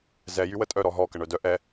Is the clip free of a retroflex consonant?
no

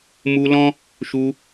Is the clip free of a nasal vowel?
no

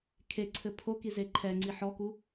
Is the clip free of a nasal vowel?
yes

